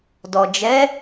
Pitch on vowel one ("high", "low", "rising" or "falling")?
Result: low